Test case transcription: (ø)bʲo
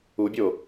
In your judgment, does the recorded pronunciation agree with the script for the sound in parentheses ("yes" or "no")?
no